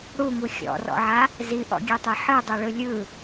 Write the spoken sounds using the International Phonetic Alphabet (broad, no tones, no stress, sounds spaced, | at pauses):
ɽ u ŋ u xʲ ɔ̰ r ɔ̰ ʕ a | z i ʔ ɔ̰ ɡʲ e tˤ e ħ ɯ dˤ e ɭ ɯ lʲ ɯ